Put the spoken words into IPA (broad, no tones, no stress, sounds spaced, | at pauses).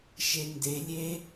ʃ e n d e lʲ e